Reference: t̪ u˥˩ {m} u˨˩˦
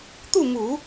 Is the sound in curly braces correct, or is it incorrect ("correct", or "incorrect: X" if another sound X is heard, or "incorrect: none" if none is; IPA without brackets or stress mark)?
correct